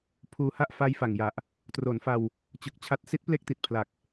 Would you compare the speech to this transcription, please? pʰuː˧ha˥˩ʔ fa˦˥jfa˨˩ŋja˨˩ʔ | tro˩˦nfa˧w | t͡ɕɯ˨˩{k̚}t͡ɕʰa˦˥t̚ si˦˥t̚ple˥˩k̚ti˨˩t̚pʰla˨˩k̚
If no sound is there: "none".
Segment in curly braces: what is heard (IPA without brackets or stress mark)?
k̚